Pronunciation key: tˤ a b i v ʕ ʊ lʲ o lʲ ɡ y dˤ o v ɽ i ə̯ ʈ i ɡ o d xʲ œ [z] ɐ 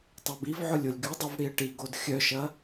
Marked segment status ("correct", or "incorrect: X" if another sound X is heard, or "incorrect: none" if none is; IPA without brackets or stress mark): incorrect: ʃ